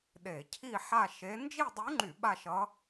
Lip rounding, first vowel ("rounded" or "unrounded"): unrounded